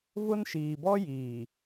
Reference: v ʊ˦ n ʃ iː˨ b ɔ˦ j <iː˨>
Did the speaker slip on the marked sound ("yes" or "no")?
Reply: no